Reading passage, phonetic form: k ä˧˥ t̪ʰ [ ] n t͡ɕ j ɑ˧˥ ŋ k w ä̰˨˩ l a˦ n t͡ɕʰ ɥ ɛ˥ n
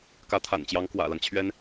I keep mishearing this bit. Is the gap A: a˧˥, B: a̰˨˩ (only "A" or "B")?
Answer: B